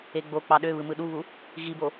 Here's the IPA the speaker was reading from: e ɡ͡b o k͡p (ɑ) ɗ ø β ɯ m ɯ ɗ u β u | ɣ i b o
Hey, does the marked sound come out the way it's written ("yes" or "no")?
yes